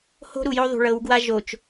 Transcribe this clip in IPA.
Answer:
h o̤˦ ɾ u˨ j o˦ ðˤ ṳ˨ ɭ ɤ˨˦ w ɡ w a˦ ʒ o˨ t͡ʃ

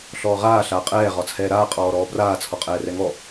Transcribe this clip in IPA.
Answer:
ɬ ɔː ʁ aː ɬ aː qʼ ɛː ʁ ɒ t͡sʰ ɛː ɾ aː qʼ ɔː ɾ ɔː b r aː t͡sʰ ɔ qʼ ɛː r ɛ ŋ ɔ

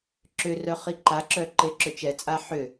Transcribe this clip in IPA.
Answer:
ǁ ʏ r œ χ i ǃ a ǁ œ ǃ e ǁ ʏ t͡ʃ ɛ t͡sʼ a ħ ʏ

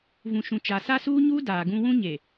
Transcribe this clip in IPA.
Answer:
v ũ˨ ʃ ũ˨ t͡ʃ a˨ s a˦ s uː˦ ɲ uː˦ d aː˨ ɡ ũ˦ w ũ˦ ɲ e˨

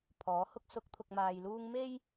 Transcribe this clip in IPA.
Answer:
pʰ ɔː˨˥ h ʊ˥ k̚ s ʊ˨˥ k̚ t̪ʰ ʊ˨ k̚ m aː˨ j l uː˧ ŋ m e˥ j

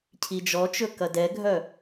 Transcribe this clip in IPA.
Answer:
cʰ i d͡ʒ ɔ t͡ʃ ɵ k ɐ d ɛ ɡʱ œ

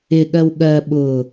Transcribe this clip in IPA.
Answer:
ɪ ɠ ɜ w ɠ ɜ ɓ ʊː

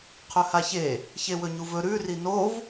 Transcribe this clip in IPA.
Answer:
qʰ ɵ h a ç e | ç e w ɵ ɲ u v ɵ ɾ ʉ r i n o v

